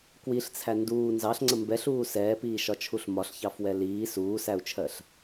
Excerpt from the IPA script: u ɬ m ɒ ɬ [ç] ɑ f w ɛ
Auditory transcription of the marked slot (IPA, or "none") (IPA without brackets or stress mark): ç